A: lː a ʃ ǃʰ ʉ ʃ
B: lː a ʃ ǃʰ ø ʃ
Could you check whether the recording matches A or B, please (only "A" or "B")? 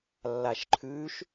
A